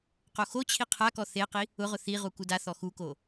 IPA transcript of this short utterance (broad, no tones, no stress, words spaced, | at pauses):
qoxot͡ɕʰi qʰakɔ θeqi | ʊʁʊ θiʁu kudaθɔ xuko